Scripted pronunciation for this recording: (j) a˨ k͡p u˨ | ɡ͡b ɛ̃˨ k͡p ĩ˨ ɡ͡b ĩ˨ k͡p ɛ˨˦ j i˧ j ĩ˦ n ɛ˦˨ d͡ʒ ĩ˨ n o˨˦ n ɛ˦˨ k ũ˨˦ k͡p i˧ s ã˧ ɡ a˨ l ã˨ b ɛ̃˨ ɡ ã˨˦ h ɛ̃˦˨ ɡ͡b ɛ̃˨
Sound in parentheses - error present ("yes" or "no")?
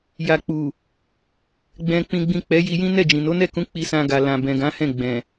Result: no